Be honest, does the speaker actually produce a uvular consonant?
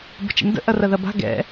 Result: no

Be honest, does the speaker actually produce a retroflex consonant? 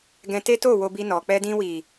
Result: no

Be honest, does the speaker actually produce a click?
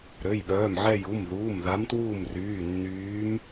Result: no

